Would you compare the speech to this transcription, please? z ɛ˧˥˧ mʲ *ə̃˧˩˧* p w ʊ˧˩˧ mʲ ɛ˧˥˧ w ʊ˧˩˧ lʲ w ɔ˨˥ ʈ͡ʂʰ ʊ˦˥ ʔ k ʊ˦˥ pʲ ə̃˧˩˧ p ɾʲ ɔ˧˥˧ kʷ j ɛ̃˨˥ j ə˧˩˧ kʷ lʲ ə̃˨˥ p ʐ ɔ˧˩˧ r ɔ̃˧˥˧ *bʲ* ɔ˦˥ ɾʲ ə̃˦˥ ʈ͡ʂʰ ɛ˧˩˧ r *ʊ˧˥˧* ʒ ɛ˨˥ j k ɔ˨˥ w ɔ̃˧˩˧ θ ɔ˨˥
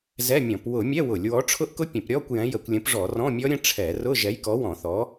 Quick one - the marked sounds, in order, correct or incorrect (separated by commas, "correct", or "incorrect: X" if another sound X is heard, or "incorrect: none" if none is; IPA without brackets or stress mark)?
incorrect: ɔ̃˧˩˧, incorrect: mʲ, correct